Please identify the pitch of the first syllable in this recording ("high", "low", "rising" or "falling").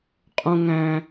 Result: low